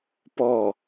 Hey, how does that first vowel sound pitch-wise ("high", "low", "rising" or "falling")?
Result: falling